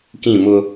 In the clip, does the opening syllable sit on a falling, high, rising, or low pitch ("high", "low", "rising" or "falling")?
falling